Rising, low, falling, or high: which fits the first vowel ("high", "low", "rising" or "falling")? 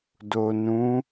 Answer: low